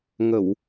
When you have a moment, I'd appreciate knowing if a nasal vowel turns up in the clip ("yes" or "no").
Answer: no